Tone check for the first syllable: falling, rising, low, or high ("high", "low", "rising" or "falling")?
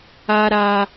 high